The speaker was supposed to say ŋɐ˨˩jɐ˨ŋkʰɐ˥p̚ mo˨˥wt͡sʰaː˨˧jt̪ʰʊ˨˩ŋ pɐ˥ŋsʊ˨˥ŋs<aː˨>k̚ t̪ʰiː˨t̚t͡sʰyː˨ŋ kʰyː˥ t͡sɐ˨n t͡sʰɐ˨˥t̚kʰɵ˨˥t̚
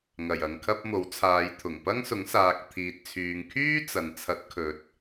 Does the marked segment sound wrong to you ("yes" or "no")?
no